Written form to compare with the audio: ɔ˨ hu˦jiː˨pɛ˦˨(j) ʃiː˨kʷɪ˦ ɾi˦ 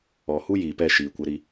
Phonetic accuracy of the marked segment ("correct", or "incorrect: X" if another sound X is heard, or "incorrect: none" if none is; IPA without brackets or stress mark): incorrect: none